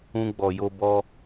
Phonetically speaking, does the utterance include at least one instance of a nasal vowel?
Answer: yes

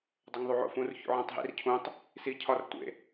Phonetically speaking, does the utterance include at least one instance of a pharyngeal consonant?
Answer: yes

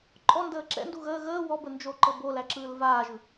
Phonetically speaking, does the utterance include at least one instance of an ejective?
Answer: yes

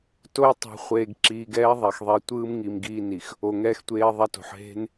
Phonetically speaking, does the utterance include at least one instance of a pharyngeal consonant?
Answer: yes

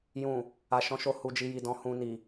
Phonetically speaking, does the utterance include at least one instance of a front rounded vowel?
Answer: no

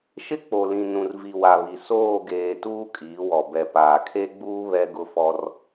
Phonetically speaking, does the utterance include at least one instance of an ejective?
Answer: yes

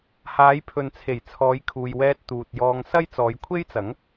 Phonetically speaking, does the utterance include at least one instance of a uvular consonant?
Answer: no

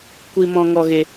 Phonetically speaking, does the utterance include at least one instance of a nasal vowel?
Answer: yes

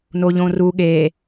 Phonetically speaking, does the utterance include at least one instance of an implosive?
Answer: yes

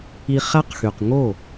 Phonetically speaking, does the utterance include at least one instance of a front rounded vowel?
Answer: yes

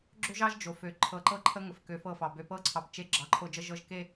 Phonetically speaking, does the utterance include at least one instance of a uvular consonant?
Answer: no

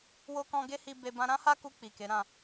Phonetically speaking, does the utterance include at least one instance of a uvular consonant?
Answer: no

